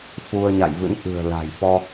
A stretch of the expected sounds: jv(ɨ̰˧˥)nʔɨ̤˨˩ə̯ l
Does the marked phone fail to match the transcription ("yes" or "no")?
no